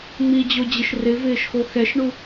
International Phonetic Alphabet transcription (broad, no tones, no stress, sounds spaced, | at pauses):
ŋ͡m i d͡ʑ o d͡ʑ ɪ ʃ r ɪ v ɪː ʃ x o x ɛ ʃ ɳ u